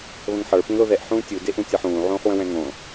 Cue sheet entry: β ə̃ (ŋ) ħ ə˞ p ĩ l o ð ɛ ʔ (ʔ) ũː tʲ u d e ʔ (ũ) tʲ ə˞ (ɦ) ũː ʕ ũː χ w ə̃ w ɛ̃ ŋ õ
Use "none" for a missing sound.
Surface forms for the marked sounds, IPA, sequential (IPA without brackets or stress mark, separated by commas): ŋ, ħ, ũ, ħ